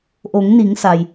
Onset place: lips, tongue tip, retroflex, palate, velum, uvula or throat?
throat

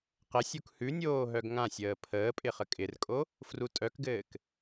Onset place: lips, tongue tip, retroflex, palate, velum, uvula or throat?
uvula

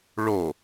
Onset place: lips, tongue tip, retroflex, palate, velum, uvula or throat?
retroflex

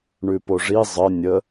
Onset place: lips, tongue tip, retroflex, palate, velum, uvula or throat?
retroflex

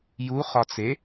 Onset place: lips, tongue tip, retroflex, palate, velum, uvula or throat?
palate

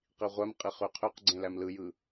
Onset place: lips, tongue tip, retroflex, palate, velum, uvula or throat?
uvula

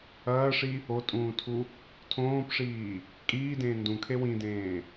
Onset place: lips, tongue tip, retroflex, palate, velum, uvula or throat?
retroflex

